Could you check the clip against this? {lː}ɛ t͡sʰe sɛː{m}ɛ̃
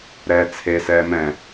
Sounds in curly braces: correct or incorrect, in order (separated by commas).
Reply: incorrect, correct